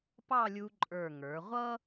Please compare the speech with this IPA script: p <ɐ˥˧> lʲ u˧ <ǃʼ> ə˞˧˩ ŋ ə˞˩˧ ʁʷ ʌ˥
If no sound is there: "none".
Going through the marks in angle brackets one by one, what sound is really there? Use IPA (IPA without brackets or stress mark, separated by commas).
ɑ˥˧, ǃʼ